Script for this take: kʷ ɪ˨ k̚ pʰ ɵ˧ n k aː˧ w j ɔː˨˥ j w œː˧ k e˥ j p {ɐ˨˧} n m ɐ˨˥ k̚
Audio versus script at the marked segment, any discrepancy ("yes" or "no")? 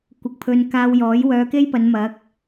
no